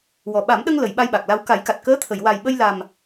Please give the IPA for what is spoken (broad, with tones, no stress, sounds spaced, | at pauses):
w ɔ˨˩ ɓ a˨˩˦ m ɗ ə˧ ŋ l ə˨˩˨ j ɓ a˧ j ɓ a˨˩ k̚ l a˧ w k a˨˩˦ j k a˨˩ t̚ k əː˧˥ t̪ʰ ə˨˩˨ j w a˨˩ j ɓ ə˧ j l a˨˩ m